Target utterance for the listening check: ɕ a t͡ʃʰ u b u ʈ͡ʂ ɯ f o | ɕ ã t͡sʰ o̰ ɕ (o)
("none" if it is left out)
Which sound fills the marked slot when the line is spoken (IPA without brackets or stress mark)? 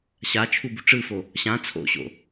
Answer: o̰